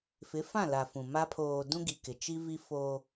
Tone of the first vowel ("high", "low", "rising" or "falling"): rising